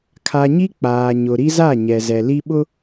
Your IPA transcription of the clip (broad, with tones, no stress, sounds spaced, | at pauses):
kʰ a˨ ɲ i˦ k͡p aː˨ ɲ ʊ˨ ɾ i˦ z a˦˨ ɲ ɛ˨ z ɛ˨ l i˦ ɓ ʊ˦